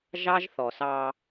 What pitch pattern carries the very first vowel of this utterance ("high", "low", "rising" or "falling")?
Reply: high